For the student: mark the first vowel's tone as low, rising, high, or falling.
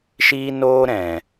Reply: high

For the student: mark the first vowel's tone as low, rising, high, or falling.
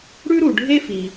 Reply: high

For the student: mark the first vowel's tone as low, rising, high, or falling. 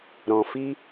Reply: low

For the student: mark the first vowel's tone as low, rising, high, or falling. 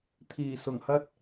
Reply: low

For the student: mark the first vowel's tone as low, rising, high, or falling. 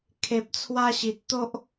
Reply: low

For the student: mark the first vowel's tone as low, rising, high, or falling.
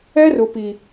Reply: high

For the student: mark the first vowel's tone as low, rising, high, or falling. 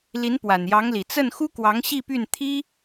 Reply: rising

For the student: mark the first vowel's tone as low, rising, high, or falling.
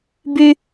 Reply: high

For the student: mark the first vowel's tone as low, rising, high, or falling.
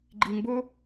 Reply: low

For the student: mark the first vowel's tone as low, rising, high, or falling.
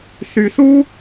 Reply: low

